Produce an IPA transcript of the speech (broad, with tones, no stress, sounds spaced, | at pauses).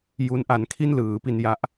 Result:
j u˦˥ n ʔ a˧ n kʰ i˥˩ n l ɯː˩˦ p i˧ n j a˦˥ ʔ